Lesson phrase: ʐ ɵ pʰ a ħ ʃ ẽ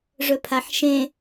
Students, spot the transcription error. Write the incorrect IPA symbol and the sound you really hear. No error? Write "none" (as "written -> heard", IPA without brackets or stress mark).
none